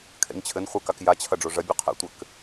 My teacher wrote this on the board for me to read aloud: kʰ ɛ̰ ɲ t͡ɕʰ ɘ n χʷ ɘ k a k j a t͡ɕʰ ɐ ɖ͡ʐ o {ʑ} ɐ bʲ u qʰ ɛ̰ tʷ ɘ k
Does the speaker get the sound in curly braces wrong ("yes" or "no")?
yes